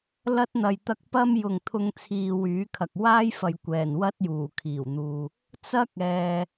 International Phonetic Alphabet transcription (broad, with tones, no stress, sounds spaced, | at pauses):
l ɐ˧ t̚ n̪ ɐ˨ j t̪ ɐ˧ k̚ p ɐ˥ m j ʊ˨ ŋ t̪ʰ ʊ˧ ŋ t͡sʰ iː˨ w yː˨˥ kʰ ɐ˨ k̚ w aː˥ j f ɐ˨ j kʷ ɛː˨˩ n w ɐ˥ t̚ j uː˨˩ kʰ iː˨˩ w n̪ uː˨ | t͡s ɐ˥ k̚ ɛː˨